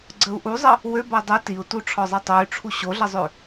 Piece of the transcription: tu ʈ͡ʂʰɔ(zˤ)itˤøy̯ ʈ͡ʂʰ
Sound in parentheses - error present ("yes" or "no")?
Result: no